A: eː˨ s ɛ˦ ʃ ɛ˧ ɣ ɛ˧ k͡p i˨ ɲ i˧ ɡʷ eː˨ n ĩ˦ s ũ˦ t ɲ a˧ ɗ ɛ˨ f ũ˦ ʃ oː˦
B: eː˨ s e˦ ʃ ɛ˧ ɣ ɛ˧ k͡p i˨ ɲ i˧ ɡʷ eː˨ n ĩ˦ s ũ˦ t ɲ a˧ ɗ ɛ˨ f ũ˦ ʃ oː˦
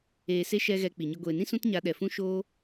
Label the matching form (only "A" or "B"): B